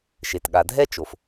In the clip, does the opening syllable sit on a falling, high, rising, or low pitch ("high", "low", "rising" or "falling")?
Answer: low